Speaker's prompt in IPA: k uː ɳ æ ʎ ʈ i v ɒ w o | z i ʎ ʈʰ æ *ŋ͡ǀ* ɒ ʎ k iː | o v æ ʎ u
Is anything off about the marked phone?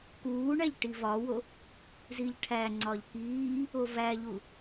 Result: no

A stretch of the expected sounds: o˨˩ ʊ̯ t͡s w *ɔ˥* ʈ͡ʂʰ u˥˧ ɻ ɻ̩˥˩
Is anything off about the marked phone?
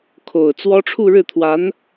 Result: no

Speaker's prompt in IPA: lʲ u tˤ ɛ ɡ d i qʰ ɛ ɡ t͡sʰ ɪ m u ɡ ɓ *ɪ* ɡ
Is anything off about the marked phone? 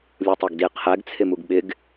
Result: no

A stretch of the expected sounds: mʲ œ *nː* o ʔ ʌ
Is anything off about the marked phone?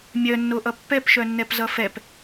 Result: no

